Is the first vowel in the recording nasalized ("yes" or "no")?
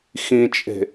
yes